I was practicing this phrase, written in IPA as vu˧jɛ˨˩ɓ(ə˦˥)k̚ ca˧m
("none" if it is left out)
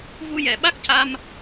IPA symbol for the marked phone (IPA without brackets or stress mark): a˦˥